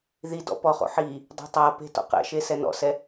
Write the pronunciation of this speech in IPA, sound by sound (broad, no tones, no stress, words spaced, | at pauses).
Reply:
ði dɔ̰pɔχo̰ ħi | dˤe̤tˤape̤ tɔ̰qɛ̰ʃe sɛnɔ̰sɛ